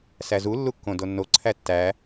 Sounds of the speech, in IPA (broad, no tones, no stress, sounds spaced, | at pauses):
s æ z u lː u kː õ d o nː o ǀʰ æ tː æ